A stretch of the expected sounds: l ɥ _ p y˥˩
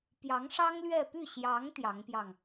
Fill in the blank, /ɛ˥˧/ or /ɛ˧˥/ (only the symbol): ɛ˥˧